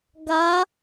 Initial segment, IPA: ɡ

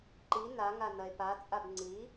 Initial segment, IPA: ǃ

